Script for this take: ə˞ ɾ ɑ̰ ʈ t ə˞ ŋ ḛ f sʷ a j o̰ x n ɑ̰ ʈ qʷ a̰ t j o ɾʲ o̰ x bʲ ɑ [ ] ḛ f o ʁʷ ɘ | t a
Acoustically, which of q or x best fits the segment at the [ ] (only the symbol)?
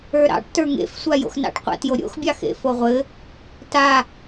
x